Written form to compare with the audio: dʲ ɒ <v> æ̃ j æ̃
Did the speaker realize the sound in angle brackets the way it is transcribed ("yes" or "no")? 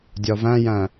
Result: yes